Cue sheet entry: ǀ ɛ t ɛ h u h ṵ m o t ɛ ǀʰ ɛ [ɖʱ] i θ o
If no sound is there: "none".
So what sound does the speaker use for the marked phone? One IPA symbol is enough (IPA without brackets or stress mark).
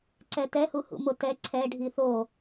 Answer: ɖʱ